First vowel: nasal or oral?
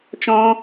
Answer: nasal